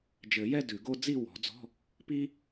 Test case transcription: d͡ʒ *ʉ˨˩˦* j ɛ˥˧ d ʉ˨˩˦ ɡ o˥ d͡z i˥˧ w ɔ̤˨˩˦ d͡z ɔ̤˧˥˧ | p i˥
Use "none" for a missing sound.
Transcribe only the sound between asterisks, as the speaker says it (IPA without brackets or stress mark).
ɘ˨˩˦